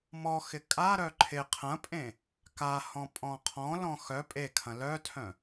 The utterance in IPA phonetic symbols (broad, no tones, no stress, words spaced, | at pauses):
mɔxɪ kʼaɾœ ǃʰɪ qʰɐ̃pʼẽ | kahɔ̃ pʼɔ̃qʰɔ̃lɔ̃ xœ pʼekʰɐ̃ lœtʰœ̃